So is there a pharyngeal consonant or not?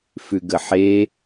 yes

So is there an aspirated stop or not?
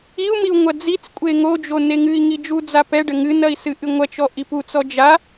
no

